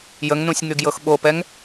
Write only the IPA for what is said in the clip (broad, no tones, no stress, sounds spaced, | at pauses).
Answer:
j ə ŋ n ũ sʲ ŋ y ɡ j ɤ x ɓ o p ɛ ŋ